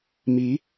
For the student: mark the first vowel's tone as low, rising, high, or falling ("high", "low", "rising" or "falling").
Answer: rising